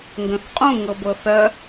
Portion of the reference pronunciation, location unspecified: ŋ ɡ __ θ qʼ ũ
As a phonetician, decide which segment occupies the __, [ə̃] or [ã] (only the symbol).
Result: ə̃